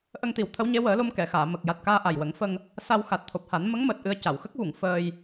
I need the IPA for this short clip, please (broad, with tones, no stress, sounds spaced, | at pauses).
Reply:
ʔ ə˧ ŋ t̪ i˨˩˦ w t̪ʰ ə˧˥ w ɲ e˧˥ w əː˨˩˦ l o˧ m k ɛ˨˩˨ x aː˨˩˨ m ə˨˩ k̚ j a˨˩ t̚ k aː˧ ʔ a˨˩ j w ə˨˩˦ ŋ f ə˧ ŋ | s a˧ w x a˨˩ t̚ t̪ʰ o˨˩ p̚ h a˨˩˦ n m ə˧˥ ŋ m əː˨˩ t̚ ʔ ɨ˧ ə̯ c a˨˩˨ w x ə˦˥ k̚ v u˨˩˨ ŋ f əː˧ j